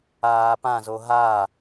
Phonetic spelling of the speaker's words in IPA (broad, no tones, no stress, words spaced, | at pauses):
aːpã zoɦa